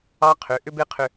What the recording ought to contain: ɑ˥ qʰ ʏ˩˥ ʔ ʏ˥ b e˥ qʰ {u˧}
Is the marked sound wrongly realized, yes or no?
yes